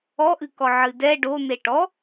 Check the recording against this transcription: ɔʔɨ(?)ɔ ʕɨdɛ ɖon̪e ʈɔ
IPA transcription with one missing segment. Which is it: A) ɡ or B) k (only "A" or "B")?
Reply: B